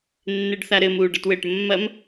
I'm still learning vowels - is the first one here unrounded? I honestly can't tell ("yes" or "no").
yes